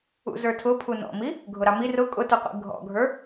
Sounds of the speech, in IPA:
ṵzə˞tʰʊpʰu nɔ̰mi | ɡʱʊɾɑmi rʊ kʼʊtuqʷḭ ɡʱɔ̰ɡʱə˞

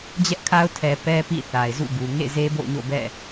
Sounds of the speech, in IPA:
d͡ʑɛ˦ʔkʰa˦ʊ̯ tʰɛ˨ pɛ˦pḭ˦˨ θa˨ɪ̯zṵ˦˨ɡu˨ ŋḛ˦˨ze˦bo̰˦˨ʊ̯ɲo̰˦˨ bɛ̰˦˨

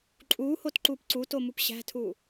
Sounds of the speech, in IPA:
ǃʼuːhotǃuːp ǀutomup ɕæ̤tʰuː

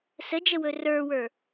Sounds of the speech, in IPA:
səd͡ʒəwɵ rə˞wə˞

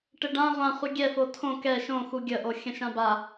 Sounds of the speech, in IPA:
ʈɘɖã ʁʷã χʷɘɡʲɛfo tʰõ kɛ ʃõ xuɡʲəʔo xʲə̃ʃãba

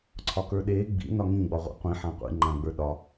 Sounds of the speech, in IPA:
ǀʰɒkə˞ɗeː ɡ͡bḭ nɒŋĩ ɡ͡bɒʁʷḛqʷĩ ħãqʷḭ ŋ͡ǃãɡ͡bə˞ɗɒ

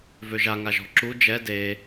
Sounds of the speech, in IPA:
vøʒaŋa ʒɔ̤ǁu d͡ʒɛ de

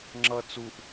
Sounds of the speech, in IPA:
ŋ͡ǁʌ t͡suʔ

